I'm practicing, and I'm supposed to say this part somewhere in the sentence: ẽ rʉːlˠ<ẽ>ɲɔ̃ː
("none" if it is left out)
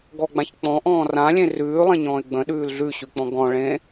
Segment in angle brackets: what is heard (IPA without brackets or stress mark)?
ẽ